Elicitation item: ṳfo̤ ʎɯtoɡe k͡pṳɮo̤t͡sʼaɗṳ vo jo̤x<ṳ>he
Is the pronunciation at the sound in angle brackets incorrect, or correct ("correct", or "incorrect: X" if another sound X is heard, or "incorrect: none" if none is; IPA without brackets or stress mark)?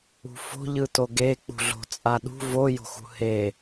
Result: correct